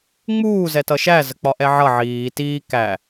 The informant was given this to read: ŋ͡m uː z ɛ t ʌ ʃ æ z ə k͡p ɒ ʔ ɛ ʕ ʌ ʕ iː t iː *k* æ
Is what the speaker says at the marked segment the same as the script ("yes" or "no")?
yes